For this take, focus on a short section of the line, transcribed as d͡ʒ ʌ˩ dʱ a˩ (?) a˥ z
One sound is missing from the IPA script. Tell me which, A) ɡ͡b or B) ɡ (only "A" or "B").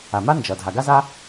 B